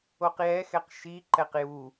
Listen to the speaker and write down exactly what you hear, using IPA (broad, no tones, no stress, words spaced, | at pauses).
oqjɛxɛq ʃiǃɛq ju